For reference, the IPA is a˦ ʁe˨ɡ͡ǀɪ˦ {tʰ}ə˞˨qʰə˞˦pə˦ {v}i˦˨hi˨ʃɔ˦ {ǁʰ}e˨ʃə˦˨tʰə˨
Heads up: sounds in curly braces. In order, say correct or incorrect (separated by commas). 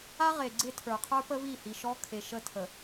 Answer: correct, correct, incorrect